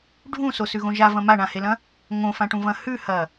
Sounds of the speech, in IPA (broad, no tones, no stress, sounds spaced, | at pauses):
ɖʱ ũ s o s ʉ ɣ õ ʒ a v ɐ̃ m a ɳ ã h e l ɐ̃ | ŋ õ f ã ʈ ũ v ɐ̃ h ʉ h ɐ